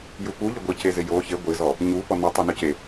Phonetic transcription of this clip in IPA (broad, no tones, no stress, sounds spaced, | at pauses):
j u p u ʎ ɪ ɡʷ i c e z ɪ j o ç e ɡʷ ɪ z ɔ | ɲ u p ɔ n ɔ tˤ o n o c e